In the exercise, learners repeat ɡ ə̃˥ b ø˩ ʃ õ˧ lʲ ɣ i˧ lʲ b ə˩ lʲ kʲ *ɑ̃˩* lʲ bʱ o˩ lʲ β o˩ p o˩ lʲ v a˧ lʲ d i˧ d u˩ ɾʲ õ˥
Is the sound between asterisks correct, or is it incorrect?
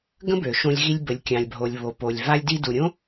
correct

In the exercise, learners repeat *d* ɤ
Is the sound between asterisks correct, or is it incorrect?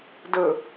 correct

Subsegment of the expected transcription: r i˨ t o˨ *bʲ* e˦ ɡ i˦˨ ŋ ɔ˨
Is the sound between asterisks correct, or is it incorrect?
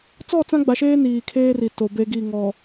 incorrect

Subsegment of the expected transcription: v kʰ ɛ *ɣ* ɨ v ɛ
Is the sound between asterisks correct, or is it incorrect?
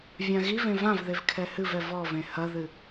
incorrect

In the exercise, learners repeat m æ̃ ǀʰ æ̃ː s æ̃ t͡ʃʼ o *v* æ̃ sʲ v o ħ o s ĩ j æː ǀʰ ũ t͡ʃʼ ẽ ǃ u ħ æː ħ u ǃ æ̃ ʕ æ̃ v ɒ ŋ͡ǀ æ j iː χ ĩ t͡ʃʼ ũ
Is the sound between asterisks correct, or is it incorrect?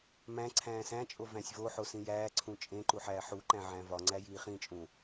correct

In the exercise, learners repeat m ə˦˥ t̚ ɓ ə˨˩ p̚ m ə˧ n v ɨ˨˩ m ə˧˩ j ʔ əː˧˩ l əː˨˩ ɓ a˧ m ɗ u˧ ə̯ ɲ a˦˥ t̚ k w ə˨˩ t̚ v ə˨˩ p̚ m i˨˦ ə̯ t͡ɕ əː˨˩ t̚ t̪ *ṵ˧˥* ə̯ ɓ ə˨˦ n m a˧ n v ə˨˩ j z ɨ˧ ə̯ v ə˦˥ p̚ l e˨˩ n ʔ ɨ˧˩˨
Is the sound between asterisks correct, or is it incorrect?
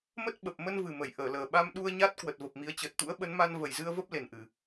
correct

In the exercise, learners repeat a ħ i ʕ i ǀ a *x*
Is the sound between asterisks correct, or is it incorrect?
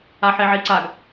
incorrect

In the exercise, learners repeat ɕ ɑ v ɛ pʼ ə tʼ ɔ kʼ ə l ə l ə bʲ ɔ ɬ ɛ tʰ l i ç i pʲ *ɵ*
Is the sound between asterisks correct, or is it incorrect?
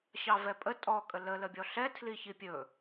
correct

